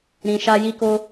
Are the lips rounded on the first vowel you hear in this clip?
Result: no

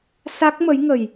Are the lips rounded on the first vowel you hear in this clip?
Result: no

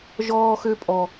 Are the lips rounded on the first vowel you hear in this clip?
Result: yes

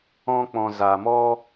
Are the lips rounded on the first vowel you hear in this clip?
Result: yes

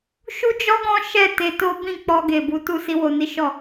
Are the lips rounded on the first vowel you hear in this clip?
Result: yes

